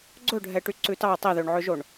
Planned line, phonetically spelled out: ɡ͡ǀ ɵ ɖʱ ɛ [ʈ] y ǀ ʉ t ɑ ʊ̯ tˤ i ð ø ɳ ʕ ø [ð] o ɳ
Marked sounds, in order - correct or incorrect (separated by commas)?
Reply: correct, incorrect